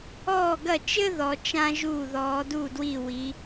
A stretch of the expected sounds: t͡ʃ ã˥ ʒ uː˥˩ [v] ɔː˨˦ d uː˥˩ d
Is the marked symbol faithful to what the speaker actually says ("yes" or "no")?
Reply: no